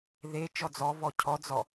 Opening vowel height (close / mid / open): mid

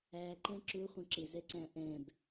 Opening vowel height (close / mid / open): open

